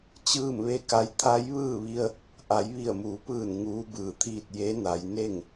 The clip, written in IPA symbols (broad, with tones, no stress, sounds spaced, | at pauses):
t͡ɕ ɯː˥˨ m ʋ e˥˨ k a˧˥ j t̪ʰ a˧˥ j ʋ ɯː˥˨ ʋ i˧ ə̯ | ʔ a˩˧ j ʋ i˧˩ ə̯ m uː˩˧ p ɯː˧˩ n ŋ uː˧˥ b ɯː˧˩ t̪ʰ iː˥˨ t̚ j e˧˥ n a˩˧ j n e˥˨ ŋ